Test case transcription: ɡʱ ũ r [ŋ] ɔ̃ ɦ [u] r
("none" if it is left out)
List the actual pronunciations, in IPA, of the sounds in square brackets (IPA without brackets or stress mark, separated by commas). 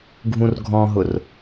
ɡʱ, ʊ